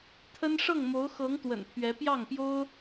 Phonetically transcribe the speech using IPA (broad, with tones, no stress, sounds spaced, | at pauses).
t̪ʰ ə˥ n ʂ ɤ˥˩ ŋ m o˧˥ ʊ̯ x ɤ˧˥ ŋ t̪ w ə̰˨˩ n pʰ ɥ ɛ˧˥ p j ɑ˥˩ ŋ p j o˥ ʊ̯